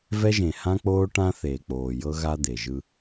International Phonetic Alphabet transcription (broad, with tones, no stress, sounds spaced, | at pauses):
v ɛ˦ ʒ ẽ˨ h ã˦ k͡p oː˦ ʈ ã˦ θ eː˨ k͡p oː˨ j ɤ˦ ɣ a˦ d̪ e˨ ʒ ɯ˦